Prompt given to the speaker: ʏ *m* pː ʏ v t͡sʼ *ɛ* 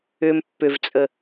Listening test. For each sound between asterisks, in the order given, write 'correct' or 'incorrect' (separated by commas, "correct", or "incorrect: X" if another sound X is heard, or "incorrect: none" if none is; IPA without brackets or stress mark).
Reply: correct, incorrect: ə